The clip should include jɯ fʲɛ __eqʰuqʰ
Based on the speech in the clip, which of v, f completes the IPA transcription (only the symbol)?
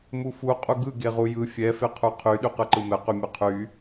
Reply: f